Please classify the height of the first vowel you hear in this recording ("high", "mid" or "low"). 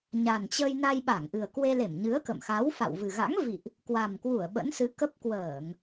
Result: low